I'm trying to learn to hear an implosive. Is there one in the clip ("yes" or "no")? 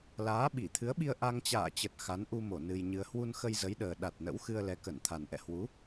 yes